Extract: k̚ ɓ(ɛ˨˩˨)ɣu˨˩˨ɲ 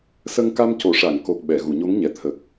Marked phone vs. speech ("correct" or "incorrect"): correct